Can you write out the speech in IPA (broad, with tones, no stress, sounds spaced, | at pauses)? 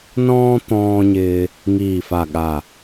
n ɔ̃ː˧ t̪ ɔ̃ː˧ ɲ ɪː˧ | ŋ iː˨˩ f a˨˩ ɠ a˨˩